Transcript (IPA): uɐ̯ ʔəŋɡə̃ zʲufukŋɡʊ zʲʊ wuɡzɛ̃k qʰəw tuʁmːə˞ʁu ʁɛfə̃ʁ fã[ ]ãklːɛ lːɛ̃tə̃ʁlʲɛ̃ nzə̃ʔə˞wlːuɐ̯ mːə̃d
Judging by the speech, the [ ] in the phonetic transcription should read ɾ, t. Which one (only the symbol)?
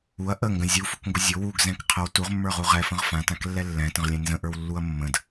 t